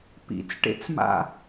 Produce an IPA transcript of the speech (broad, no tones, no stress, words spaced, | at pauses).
pḭt͡sʈḛt͡sma̰